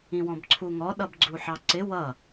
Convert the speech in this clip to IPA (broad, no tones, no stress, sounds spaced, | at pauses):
ĩ w ɔ̃ b ǀʰ u ŋ ɔ ɗ ʌ b ɡ͡ǀ u ħ ɑ ǀ ɪ w ʌ